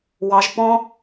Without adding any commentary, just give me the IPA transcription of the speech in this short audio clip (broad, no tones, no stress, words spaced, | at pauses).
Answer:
wɑʒ pɔ̃